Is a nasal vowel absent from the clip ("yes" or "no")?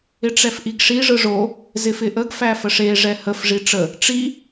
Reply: yes